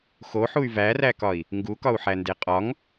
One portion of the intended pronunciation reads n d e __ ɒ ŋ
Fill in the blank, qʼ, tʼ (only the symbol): qʼ